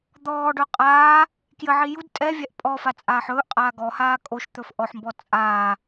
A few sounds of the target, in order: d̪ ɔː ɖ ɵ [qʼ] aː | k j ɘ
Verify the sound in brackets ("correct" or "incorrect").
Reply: correct